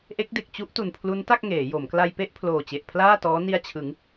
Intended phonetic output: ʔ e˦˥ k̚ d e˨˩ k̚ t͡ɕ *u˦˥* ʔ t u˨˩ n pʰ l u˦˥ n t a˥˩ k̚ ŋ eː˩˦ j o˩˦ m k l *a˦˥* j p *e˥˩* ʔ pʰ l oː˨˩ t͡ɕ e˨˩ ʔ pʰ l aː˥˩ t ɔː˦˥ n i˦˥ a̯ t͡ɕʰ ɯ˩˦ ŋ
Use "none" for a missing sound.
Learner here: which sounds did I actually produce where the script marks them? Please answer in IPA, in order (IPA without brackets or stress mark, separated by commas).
u˦˥, a˧, e˥˩